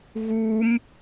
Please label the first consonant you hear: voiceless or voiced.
voiced